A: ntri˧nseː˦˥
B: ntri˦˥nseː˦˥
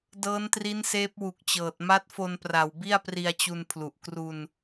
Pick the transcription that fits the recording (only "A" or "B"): B